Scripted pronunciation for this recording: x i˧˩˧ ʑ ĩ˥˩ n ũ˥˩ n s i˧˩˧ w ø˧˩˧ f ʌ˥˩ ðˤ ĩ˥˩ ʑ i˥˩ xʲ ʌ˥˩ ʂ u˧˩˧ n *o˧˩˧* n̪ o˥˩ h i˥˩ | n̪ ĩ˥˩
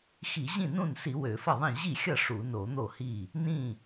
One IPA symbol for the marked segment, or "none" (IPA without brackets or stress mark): o˧˩˧